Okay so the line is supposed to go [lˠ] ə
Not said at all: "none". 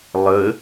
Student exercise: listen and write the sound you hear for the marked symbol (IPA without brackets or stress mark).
lˠ